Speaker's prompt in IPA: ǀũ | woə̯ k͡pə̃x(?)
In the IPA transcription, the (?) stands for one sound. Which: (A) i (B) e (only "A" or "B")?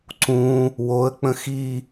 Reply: A